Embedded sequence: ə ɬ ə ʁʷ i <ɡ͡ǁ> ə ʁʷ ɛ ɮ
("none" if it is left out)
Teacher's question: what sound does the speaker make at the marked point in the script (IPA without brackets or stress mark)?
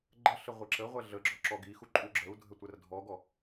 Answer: ǁ